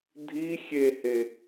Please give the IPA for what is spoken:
dʱ i xʲ e h e

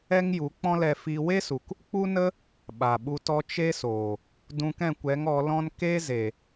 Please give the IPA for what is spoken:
ɛ˦ ŋ j u˨˦ k͡p ɔ̃˦ l ɛ˧ f i˧ w e˦ s u˨ k | k͡p u˦ n ə˦ | ɓ a˨ ɓ u˧ t ɔ˦ t͡ʃ e˦ s oː˨ | d ũ˧ k ɛ̃˦˨ kʷ ɛ˨˦ ŋ ɔ˨˦ l ɔ̃˦ n k e˦ z e˨

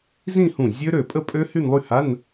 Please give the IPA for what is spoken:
z ĩ˥˧ h ũ˧˩ zʲ ø˦˥ ɾ ø˧˩ pʼ ə˥˧ pʼ ø˦˥ h y˥˧ n lˠ y˥˧ h a˧˥˧ n

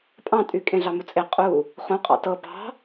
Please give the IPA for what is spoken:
pʼ ɑ̃ tʼ y kʼ ẽ ɮ ɑ m u t͡sʼ e qʼ u | χ ũ qʼ ɑ̰ t ɤ b ɑ̤

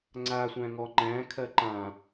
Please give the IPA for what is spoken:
ŋ͡ǀ a sʷ æ̃ ŋ ɔ ŋ͡ǃ æ̃ kʰ ɜ ǃ ã

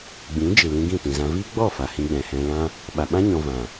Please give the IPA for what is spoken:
ɡ͡b ĩ˨˦ d͡ʒ ɨ˨ l ĩ˧ ɡ ĩ˦˨ t ĩ˨ z ã˧ v iː˦ ɡ͡b ɔ˦˨ f a˨ h ĩ˧ ɡ͡b ɛ̃˨ h ɛ̃˧ l ã˧ | ɓ a˨ ɓ ã˦ ɲ ɔ̃˧ v ã˨

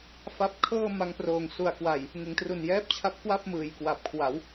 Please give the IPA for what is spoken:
f a˦˥ p̚ kʰ ɤː˥˩ m a˧ ŋ p r oː˨˩ ŋ s u˨˩ a̯ k w a˨˩ j | ŋ ɯ˩˦ ŋ t r u˨˩ n j ɛː˦˥ p̚ t͡ɕʰ a˦˥ p̚ k w a˥˩ p̚ m ɯː˨˩ j k w a˨˩ p̚ kʰ w a˩˦ w

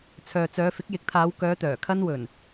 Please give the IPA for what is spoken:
t͡sʰ œː˨ t͡s œː˨˧ f ɪ˨˥ k̚ j ɪ˨˥ k̚ t̪ʰ aː˨˧ w k œː˨˧ t̪ œː˨˩ kʰ ɐ˧ n w ɵ˨˩ n

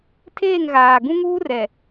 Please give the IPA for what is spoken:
tʰ eː˦˨ ŋ ɣ aː˨ ɡ ũ˦ ŋ uː˦ r ɛ˨

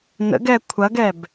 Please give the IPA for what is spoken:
n ə̰ ɡ ɛ kʷʰ ɐ ɡ ɛ b

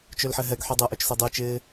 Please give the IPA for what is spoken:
t͡ʃ ø l ħ ɛ ɦ ɛ ɡ ħ y dˤ ɛ ʔ ø t͡ʃ s œ dˤ y t͡ʃ ɪː

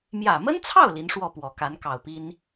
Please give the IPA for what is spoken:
m j ä˨˩ m ə˥ n t͡sʰ ɑ˥˩ ʊ̯ l i˧˥ n ʂ w ɔ˥˩ p w ɔ˨˩ k a˧˥ n k ɑ˨˩ ʊ̯ p i˥ n

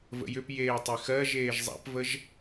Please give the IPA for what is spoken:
v ə̰ j ʏ p j eː tˤ e x ɜ ʒ eː ʒ zˤ a̰ p v ə ʒ

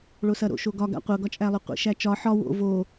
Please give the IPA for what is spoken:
ɭ o s ɐ ɾ o̰ ʃ o ɡ ɒ ɡ a̰ qʷ ɤ ɡ ɒ t͡ʃʼ æ lˠ o qʷ ḭ ʃ æ t͡ʃ ɒ ħ ɒ w o̰ v o

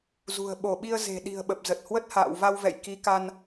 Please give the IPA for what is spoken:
z ṳ˨˩ ə̯ ɓ o˧˩ ɓ i˧ ə̯ z e̤˨˩ ɗ i̤˨˩ ə̯ ɓ ə˨˩ p̚ z ə˨˩ t̚ h w ə˦˥ t̚ h a̰ː˧˨ w v a˧ w v ɛ̰˧˨ j k i˨˦ k a˧ n

